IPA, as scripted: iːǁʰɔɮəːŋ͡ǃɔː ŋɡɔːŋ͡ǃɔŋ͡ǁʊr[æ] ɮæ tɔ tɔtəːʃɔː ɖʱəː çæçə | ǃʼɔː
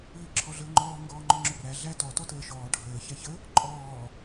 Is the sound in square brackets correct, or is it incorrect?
correct